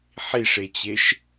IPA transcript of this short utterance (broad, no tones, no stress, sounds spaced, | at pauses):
ħ i ʂ e t͡ɕ e ʃ